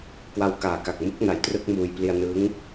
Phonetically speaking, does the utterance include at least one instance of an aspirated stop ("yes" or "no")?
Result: no